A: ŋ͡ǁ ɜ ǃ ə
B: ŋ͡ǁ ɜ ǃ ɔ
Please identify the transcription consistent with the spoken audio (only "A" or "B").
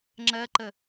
A